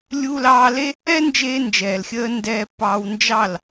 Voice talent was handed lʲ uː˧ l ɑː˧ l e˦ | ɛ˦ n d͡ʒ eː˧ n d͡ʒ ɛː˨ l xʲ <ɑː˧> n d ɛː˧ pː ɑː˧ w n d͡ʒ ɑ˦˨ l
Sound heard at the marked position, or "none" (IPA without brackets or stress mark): əː˧